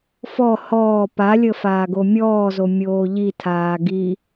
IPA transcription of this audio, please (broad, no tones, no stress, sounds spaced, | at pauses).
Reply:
f ɔ h ɔː p a lʲ ə f aː ɡ o mʲ ɔː z o mʲ oː ʎ i tʰ aː ɡ i